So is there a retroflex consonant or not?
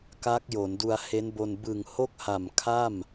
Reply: no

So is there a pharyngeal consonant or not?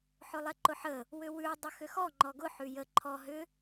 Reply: yes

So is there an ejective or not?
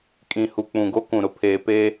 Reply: yes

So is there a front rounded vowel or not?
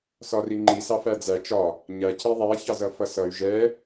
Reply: yes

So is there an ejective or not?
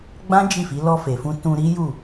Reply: no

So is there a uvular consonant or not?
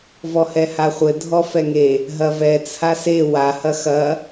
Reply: yes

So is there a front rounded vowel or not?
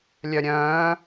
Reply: yes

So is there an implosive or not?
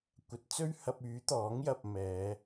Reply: no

